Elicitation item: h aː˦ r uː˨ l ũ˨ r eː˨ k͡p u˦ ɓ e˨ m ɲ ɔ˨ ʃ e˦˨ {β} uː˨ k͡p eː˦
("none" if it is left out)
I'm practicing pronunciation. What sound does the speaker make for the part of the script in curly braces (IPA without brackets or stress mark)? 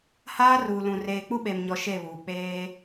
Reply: β